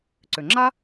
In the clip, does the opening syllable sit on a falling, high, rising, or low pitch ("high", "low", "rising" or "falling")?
low